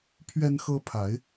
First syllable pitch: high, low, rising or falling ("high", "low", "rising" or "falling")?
high